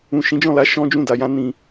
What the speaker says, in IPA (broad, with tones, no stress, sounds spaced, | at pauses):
ũ˨ ʃ ĩ˨˦ d͡ʒ ɔ̃˦˨ l a˧ ʃ ɔ̃˦ d͡ʒ ũ˦˨ d a˨ j ã˧ n ĩ˨